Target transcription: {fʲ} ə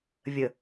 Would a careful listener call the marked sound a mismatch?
yes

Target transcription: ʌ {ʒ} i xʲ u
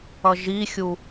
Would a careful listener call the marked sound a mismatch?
no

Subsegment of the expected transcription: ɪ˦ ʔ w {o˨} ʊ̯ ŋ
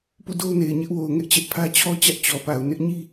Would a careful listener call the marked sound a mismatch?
no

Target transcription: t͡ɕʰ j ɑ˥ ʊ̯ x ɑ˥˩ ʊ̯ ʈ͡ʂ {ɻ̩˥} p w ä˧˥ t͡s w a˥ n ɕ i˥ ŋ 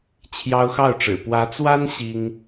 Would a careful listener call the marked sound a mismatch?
yes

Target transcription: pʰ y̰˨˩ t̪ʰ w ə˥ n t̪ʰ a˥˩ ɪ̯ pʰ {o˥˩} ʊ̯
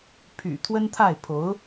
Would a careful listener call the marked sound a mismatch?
yes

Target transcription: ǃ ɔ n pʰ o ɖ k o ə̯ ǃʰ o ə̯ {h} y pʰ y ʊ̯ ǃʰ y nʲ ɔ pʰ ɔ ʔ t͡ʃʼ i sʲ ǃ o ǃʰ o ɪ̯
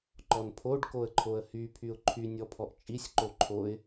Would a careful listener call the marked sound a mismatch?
no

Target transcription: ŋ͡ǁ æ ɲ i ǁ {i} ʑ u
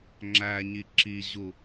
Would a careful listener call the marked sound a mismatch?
no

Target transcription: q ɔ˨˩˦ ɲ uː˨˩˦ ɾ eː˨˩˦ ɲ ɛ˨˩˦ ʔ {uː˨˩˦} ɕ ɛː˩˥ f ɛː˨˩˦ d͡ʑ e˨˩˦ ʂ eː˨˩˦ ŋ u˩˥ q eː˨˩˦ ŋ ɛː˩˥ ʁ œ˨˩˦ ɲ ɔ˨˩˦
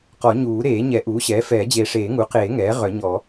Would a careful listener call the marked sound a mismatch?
yes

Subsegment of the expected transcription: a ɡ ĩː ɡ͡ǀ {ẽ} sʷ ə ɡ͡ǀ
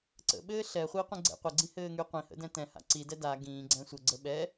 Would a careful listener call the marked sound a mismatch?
yes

